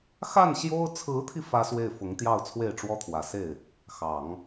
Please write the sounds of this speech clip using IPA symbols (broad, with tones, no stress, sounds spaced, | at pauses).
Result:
x a˥˩ n ɕ j o˥ ʊ̯ t͡sʰ ɹ̩˧˥ t̪ʰ i˧ f ä˥ s w e˥˩ ɪ̯ f ʊ˧˥ ŋ t̪ j ɑ˥˧ ʊ̯ t͡sʰ w e˥˩ ɪ̯ ʈ͡ʂ w ɔ˥ t̪ʰ w ä˨˩ s e˥˩ ɪ̯ | x ɑ˨˩˦ ŋ